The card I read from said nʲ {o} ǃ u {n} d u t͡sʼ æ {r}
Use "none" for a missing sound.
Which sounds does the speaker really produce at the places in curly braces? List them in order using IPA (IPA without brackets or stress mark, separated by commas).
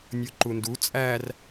o, n, r